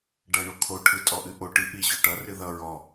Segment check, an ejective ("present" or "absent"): present